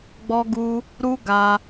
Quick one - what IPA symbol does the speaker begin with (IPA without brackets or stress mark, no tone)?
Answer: ɡ͡b